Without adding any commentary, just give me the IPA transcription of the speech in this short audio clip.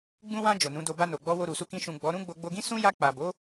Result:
ɡ͡bũ˧wã˧ d͡ʒo˨nũ˨˦do˧ ba˧no˨ɡ͡bɔ˧ wo˧ɾu˨su˧ kĩ˧ ʃũ˨ ɡ͡bɔ˨˦ɾũ˦ ɡ͡bo˧ɡ͡bo˧ɡĩ˦ sũ˦ja˧k͡pa˨ bo˨˦

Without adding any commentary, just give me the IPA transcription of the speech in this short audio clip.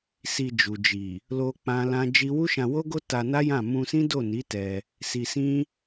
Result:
si˧d͡ʒu˨d͡ʒi˨ | lo˧ k͡pã˦lã˦ d͡ʒi˦ wu˦ʃã˧wo˦ɡo˦ ta˧na˦ jã˦˨ mũ˧sĩ˦do˦˨ni˨˦ tɛ˧ | si˧sĩ˦

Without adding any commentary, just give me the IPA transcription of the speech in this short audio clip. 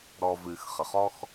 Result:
ɾɔ˧ vɨː˨x χə˨χɔ˦x

